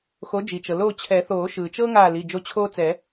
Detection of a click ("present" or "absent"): absent